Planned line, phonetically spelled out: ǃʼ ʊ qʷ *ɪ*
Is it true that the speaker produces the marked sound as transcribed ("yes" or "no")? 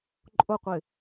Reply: yes